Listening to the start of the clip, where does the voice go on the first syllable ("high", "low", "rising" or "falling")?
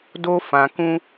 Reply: high